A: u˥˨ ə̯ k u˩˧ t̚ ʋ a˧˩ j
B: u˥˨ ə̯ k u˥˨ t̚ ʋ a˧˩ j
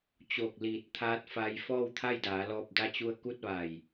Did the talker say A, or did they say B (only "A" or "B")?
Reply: B